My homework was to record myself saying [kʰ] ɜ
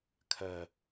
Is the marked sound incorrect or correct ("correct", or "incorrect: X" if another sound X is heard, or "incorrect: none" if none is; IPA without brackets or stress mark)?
correct